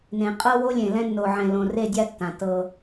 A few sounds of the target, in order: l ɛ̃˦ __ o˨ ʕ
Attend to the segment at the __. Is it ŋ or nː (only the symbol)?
nː